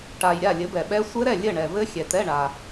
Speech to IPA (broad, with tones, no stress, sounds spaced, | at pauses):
ʈ a˨ j ɾʲ a˥˨ lʲ ɘ˨˥ b ɛ˨ ɓ ɛ˦˥ sʷ ɘ˦˥ ɾ ɛ˥˨ lʲ ɘ˥˨ ɳ ɛ˨ v ɘ˦˥ xʲ ɛ˨ t ɛ˧˥˧ ɳ a˨